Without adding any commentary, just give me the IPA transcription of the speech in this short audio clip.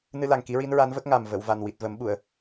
nɨ˧la˨˩ŋ ki˧˥ɹi˧˥nɹa˧˥nvə˦˥k̚ ŋa˨˩mvə˨˩˨w va˨˩nwi˨˩t̚və˨˩˦mɓu˨˩˨ə̯

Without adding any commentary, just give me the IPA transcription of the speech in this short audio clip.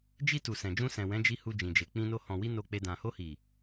d͡ʒi˧ tu˨sɛ̃˨d͡ʒũ˧sɛ̃˨ wɛ̃˨˦d͡ʒi˧ hu˧d͡ʒĩ˨d͡ʒe˨ k͡pĩ˧no˧ hɔ̃˨wi˧ no˧k͡pe˧ dã˨ho˧hi˨

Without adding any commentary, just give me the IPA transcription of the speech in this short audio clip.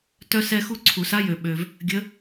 tœ˥sɛ˥xu˥ ǀʰu˨˩˦sa˥jø˨ɓø˨v | ɡʲə˧˥

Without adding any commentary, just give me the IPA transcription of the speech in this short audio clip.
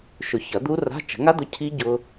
ʃʊ˨˩˦çɐ˨˩˦ d̪u˦˥ra̤˧˥˧ t͡ʃə̤˨˩˦ŋa˦˥d̪ʊ˨˥ cʰi˦˥ ɟʊ˦˥

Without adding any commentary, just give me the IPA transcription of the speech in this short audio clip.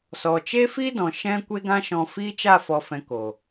sɔ˨t͡ʃe˦fi˦ dɔ̃˨ ʃɛ̃˦ kʷe˧ɡã˧ʃɔ̃˨ fi˦t͡ʃa˦˨fɔ˨fɛ̃˨ ko˨

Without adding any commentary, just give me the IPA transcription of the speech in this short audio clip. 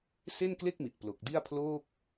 se˥˩nkle˥˩k̚mi˨˩t̚ plo˨˩k̚di˥˩a̯ pʰloː˥˩k̚

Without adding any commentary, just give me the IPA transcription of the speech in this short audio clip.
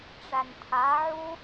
ʈ͡ʂæntʰaʕu

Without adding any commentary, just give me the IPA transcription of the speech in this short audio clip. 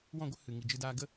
wɔ̃˦˨ɡʷə˦ hɨ˨ŋi˨d͡ʒɨ˧daː˧ ɡə˦

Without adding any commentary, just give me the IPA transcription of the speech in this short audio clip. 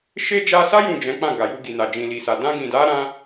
ʃe˦ d͡ʒa˧sa˦ jũ˦˨d͡ʒɛ̃˨˦k͡pã˦˨ ɡa˨ju˧ɡi˨na˨ d͡ʒĩ˨li˨sa˨ dã˧ɡĩ˨da˨˦ɾã˧

